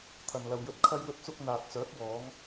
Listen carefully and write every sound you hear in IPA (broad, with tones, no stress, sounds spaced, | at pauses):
t̪ʰ ɐ˨ n l ɐ˨ w j ɵ˧ t̚ kʰ ɐ˧ j w ɵ˧ t̚ t͡s ʊ˧ k̚ n̪ aː˨ t̚ t͡s œː˨˥ k̚ w ɔː˨˧ ŋ